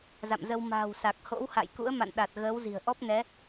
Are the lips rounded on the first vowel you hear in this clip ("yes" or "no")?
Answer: no